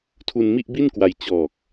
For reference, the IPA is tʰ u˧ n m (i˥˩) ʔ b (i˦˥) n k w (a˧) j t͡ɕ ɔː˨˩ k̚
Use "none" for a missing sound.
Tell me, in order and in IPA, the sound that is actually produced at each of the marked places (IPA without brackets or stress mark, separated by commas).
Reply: i˥˩, i˥˩, a˧